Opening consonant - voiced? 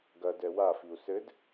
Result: yes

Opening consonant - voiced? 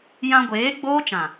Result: yes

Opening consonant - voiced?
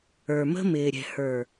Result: yes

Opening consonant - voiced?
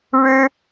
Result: yes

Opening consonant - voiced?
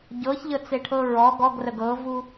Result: yes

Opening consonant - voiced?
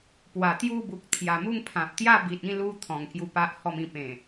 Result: no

